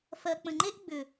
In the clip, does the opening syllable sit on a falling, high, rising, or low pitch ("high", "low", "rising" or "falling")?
low